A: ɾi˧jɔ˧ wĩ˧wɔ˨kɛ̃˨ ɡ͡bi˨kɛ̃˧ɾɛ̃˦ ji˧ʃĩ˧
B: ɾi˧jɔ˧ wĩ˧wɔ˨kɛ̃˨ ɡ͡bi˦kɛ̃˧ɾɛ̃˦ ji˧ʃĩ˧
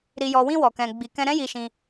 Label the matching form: A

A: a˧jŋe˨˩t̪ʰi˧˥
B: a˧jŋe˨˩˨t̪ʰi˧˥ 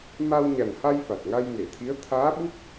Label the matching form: B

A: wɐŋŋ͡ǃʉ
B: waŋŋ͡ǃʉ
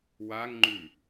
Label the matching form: B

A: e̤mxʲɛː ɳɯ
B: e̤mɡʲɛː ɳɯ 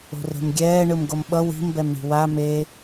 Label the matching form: B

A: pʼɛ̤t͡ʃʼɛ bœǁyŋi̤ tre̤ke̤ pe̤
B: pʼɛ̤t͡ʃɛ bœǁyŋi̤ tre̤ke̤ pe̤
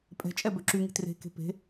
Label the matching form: A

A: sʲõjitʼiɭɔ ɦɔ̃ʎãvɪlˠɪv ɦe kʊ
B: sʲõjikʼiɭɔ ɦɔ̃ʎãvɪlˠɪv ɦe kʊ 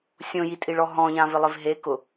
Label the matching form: A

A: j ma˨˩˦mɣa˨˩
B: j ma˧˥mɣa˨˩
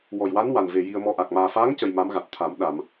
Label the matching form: B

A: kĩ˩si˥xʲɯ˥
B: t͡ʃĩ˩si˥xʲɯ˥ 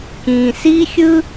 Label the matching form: A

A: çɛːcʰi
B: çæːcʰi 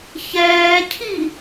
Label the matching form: A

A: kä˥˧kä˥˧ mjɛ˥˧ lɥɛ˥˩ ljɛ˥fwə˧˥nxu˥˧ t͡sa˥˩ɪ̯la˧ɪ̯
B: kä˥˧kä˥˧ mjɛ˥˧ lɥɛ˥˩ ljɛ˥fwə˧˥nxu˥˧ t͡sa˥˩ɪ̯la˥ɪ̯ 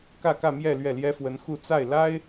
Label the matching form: B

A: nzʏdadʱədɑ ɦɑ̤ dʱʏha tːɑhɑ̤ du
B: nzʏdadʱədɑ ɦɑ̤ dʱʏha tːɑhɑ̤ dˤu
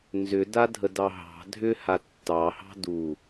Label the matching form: A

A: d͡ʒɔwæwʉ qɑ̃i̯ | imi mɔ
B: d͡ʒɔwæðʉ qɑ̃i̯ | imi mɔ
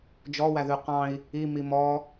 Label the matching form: B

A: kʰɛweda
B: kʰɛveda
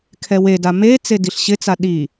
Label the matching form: A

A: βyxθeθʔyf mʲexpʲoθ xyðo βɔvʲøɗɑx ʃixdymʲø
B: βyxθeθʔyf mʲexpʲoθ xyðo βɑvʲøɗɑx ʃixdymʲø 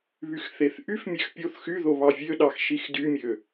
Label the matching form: B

